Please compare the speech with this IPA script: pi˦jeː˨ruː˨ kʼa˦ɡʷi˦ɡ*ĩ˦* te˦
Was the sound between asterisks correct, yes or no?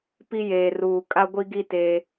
no